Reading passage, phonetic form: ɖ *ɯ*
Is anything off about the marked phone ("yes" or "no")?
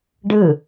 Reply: no